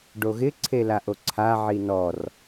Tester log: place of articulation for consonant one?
retroflex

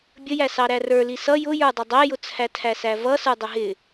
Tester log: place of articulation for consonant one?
labial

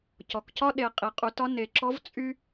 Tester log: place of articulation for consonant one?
palatal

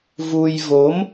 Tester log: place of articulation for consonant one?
labial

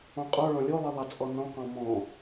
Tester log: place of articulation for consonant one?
uvular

